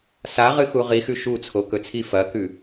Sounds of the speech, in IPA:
s a ʁ ɨ x u ʁ i x ʉ ʃ u t͡sʰ o k ɵ t͡sʰ i f ɐ k ʉ

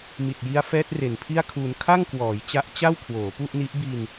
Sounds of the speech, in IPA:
m i˨˩ t̚ j i˦˥ a̯ f ɛː˦˥ t̚ r e˨˩ n pʰ i˥˩ a̯ kʰ u˧ n kʰ a˥˩ ŋ k w ɔː˩˦ j t͡ɕ a˦˥ ʔ t͡ɕ a˥˩ w kʰ w oː˩˦ p u˥˩ ʔ n i˦˥ ʔ b i˧ n

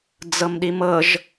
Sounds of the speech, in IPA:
d͡z ɤ m ɗ i m ɤ ʒ

